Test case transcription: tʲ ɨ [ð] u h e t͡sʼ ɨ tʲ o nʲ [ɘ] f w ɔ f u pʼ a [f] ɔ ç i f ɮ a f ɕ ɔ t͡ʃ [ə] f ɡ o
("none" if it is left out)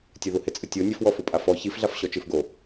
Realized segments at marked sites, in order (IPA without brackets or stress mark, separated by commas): ð, ɘ, f, ɨ